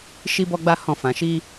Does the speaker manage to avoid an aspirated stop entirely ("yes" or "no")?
yes